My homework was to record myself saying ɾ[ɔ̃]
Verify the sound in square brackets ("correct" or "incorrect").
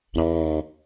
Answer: incorrect